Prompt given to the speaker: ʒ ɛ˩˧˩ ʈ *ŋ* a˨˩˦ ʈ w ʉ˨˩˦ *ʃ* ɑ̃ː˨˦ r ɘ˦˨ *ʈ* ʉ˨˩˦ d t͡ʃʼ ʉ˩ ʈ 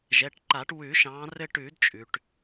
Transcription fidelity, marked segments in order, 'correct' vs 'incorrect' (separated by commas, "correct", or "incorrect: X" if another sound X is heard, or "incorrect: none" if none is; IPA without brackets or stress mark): incorrect: ǃ, correct, correct